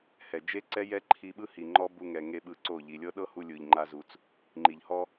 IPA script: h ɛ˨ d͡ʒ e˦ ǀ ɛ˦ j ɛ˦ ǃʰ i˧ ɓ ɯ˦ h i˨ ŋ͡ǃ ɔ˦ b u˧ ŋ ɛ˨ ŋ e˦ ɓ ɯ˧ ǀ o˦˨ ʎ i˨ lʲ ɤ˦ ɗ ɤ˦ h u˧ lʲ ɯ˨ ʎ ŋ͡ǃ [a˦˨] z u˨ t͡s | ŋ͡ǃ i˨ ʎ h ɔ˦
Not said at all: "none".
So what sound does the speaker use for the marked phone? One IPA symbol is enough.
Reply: a˧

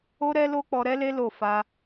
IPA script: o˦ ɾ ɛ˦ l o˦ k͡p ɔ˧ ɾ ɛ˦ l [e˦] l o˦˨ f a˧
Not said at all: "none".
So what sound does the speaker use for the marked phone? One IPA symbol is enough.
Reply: e˦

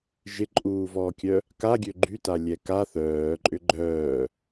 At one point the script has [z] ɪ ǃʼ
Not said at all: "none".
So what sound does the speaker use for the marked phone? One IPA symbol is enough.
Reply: ʒ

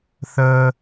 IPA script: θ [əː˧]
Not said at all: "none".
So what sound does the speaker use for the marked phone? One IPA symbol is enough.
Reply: əː˧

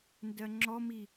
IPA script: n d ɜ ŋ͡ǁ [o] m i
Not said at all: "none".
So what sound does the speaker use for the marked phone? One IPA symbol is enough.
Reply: ɔ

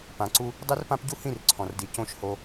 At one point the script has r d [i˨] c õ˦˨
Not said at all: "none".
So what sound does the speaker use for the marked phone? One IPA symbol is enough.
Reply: i˨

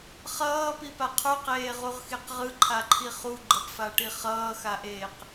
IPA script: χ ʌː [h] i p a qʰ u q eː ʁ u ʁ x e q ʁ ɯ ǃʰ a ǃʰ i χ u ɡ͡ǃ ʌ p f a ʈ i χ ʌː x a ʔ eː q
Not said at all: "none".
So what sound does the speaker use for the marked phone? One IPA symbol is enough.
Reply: p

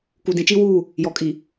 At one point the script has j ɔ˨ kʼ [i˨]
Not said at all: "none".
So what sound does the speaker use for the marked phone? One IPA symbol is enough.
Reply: i˨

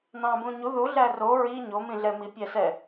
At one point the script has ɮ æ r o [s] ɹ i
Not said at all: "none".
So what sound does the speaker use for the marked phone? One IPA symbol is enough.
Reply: none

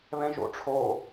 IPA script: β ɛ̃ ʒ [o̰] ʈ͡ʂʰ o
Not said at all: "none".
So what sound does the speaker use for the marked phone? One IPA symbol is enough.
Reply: o̰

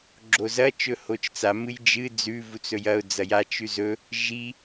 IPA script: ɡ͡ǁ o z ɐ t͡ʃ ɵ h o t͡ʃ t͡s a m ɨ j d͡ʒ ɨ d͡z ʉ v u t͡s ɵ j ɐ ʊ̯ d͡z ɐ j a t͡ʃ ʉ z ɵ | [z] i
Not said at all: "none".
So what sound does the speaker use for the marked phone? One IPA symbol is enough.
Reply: ʒ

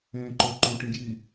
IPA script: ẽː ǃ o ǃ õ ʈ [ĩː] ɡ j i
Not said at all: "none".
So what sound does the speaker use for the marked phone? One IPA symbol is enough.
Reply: ĩ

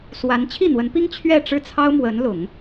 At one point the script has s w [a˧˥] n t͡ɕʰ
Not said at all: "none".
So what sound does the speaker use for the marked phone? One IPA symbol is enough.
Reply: a˧˥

